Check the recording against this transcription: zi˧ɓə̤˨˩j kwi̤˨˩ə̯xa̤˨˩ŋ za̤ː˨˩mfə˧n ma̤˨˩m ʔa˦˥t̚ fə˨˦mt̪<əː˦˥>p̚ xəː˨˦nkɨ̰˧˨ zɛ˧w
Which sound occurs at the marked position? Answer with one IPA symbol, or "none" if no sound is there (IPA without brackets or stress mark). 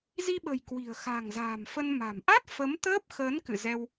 əː˦˥